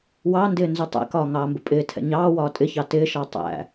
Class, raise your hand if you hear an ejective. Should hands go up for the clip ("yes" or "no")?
yes